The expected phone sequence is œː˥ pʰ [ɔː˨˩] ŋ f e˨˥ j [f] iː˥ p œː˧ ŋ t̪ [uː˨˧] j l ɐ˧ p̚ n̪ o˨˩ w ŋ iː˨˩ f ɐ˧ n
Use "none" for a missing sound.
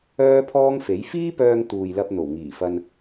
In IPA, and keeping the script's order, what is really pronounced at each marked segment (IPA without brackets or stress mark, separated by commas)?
ɔː˥, f, uː˨